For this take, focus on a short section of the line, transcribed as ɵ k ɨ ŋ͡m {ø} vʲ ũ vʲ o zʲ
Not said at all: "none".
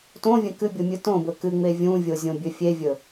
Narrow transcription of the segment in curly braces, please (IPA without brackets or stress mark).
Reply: e